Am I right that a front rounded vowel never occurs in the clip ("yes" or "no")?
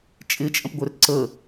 no